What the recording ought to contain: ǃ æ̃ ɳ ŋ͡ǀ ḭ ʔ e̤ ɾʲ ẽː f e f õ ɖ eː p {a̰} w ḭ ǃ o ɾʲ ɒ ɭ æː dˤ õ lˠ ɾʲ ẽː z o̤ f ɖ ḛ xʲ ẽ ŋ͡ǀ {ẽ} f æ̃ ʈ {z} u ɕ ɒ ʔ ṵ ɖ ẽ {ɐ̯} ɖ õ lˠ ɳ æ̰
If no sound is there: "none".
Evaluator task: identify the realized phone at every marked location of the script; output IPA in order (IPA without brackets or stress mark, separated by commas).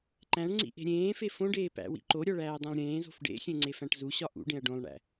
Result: æ̰, e, z, ɐ̯